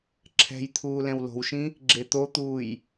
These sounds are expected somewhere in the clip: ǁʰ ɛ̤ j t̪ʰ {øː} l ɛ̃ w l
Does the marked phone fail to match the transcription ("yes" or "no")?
yes